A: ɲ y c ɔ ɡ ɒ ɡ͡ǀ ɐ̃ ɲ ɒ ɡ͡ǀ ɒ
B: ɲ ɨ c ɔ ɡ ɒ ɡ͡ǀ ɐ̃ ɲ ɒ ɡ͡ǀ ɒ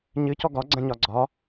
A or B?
B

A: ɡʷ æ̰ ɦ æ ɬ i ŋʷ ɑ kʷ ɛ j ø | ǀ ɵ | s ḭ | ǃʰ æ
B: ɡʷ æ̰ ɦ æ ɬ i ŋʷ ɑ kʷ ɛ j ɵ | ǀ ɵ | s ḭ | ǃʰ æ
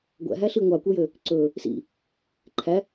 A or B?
A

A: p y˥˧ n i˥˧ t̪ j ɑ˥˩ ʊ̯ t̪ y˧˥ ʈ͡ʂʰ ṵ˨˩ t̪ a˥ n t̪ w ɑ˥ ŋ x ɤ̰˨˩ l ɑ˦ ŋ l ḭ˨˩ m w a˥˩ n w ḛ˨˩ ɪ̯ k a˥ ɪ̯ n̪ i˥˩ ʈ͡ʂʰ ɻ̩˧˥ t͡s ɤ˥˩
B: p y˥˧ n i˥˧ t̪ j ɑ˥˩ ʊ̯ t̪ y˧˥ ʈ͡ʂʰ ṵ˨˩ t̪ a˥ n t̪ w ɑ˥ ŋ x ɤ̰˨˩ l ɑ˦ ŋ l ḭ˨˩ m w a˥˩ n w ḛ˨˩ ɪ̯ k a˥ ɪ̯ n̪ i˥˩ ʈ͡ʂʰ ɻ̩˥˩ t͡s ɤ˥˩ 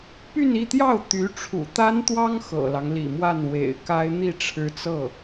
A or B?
A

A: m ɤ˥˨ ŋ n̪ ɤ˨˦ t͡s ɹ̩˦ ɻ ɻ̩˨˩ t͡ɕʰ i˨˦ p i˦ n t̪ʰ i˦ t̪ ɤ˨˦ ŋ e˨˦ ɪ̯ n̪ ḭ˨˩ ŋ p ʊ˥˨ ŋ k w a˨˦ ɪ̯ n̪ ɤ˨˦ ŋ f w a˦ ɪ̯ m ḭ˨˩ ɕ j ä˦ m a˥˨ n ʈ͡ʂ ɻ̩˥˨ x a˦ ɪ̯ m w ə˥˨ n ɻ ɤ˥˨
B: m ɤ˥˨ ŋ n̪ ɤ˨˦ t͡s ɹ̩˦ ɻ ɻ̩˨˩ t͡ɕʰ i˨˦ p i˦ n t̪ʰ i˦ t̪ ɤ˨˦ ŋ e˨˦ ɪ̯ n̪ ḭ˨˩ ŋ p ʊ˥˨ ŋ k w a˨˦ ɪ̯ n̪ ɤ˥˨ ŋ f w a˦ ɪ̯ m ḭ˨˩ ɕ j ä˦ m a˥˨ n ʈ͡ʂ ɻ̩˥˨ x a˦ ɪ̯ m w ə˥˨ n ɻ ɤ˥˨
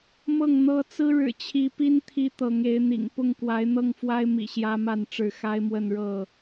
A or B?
B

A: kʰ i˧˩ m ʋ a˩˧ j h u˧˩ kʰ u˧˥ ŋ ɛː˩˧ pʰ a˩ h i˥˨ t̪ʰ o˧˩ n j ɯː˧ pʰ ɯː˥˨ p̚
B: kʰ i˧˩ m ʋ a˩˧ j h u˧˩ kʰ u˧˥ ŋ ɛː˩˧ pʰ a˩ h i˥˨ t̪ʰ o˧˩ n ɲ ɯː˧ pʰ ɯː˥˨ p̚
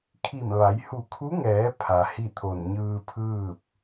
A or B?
B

